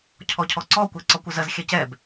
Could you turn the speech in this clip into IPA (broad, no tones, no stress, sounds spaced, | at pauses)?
cʰ ɔ cʰ ɔ ǀ ɔ kʷ ɛ ǀ ɔ kʷ ə z ɜ z xʲ ɛ c ɛ b